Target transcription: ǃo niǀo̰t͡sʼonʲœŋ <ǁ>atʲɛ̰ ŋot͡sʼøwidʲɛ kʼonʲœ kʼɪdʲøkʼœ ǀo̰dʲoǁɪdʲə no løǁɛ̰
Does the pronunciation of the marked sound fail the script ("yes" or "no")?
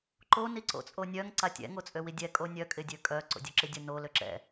yes